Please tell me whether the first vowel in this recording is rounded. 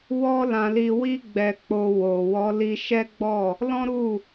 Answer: yes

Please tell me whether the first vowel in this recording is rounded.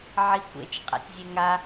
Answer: no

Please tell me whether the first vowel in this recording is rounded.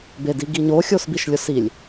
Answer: no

